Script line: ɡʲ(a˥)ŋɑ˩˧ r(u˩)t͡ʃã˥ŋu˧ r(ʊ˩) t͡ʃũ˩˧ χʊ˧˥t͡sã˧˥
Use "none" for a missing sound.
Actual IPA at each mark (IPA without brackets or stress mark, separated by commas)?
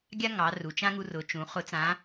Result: a˥, u˩, ʊ˩˧